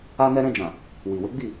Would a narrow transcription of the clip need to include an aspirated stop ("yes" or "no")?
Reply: no